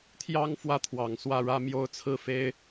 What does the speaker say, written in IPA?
t̪ʰ j ɑ˥ ŋ f w ä˥ t̪ʰ w ɑ˨˩ ŋ s w ä˥˩ ɻ ä˥ m j o˥ ʊ̯ t͡sʰ ɹ̩˥˩ f e˥ ɪ̯

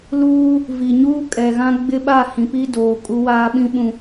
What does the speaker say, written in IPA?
l uː˦ | v i˨ ɲ uː˦ kʼ ɛ˨ ɣ ã˦ ɡ͡b ɪ˦ ɓ a˦˨ h ĩ˨ p i˦ d oː˨ kʼ u˦ w aː˦ ɓ ĩ˦ ɓ ũ˨

